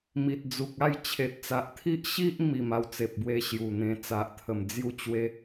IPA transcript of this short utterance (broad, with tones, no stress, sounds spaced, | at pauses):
m i˨ t̚ d͡z u˨ k̚ a˥˧ j t͡ɕʰ e˨ t̚ t͡s a˨ ʔ t̪ʰ i˦ ʔ ɕ i˦ ʔ m i˨˩ m a˥˧ w t͡s e˨ p̚ b w e˧ ɕ j u˨˩ n̪ ẽ˧ t͡s a˨ ʔ t̪ʰ ə˨˩ m d͡z j u˥˧ t͡ɕ w e˦